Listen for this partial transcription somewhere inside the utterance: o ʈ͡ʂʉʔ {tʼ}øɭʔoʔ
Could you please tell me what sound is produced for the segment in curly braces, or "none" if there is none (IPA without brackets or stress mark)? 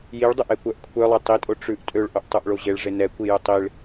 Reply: tʼ